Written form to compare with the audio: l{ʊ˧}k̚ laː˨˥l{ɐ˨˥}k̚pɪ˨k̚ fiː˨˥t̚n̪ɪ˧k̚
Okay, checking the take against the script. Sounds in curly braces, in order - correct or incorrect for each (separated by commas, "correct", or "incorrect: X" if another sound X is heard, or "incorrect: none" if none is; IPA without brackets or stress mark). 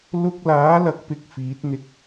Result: correct, correct